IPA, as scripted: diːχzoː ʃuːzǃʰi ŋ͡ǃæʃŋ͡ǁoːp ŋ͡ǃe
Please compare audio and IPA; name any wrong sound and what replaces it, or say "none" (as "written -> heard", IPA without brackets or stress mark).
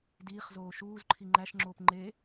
none